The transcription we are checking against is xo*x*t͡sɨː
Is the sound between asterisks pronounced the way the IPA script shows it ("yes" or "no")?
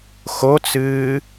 no